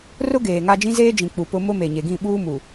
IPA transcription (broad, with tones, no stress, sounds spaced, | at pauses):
r ʊ˦ ɡ eː˨ ŋ a˦ d͡ʒ ĩ˦ z eː˦ d͡ʒ ĩ˨ k͡p u˨ p ʊ˦ m ʊ˦ m e˨ ɲ e˨ ɡ ĩ˦˨ ɓ uː˦ m u˨